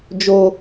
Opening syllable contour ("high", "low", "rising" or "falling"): low